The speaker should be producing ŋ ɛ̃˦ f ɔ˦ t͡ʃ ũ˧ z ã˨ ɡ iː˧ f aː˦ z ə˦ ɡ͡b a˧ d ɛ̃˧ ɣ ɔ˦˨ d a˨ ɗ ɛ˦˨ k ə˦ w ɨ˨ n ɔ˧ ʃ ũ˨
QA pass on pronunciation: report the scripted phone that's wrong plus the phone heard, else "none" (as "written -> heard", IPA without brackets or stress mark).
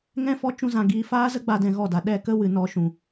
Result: none